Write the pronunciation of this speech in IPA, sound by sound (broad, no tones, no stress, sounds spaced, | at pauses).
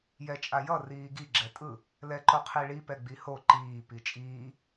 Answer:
j ɛ t͡ʃʼ a j ʌ r iː ɡ i ɡ͡ǁ ɛ tʼ ɯ | l ɛ ǃ o qʰ i ɭ i p ɛ ɡ͡b i h o ǃ iː p i t͡ʃʼ iː